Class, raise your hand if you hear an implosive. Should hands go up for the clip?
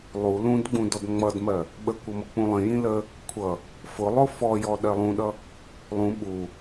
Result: yes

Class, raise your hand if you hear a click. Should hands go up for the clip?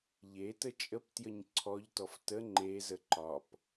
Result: yes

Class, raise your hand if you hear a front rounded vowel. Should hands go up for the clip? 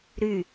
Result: yes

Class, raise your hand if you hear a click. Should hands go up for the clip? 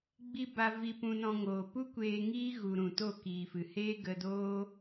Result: no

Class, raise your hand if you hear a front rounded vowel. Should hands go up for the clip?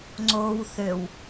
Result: yes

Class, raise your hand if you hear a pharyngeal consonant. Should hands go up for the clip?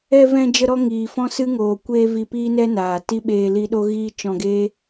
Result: no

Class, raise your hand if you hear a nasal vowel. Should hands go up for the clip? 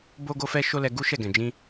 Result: yes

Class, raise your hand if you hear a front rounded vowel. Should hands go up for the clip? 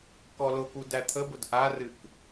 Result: no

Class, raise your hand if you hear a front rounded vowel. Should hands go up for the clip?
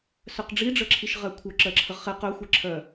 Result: yes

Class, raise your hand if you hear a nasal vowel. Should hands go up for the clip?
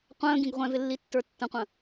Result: yes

